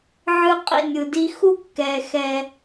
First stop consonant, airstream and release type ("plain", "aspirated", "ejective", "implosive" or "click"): ejective